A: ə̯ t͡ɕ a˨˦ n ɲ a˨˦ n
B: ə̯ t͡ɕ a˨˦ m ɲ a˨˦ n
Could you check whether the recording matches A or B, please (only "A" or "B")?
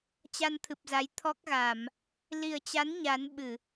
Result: A